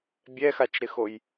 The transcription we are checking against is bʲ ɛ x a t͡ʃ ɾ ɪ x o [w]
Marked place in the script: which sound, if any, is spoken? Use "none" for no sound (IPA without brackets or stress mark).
j